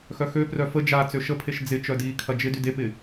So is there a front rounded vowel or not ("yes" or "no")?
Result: yes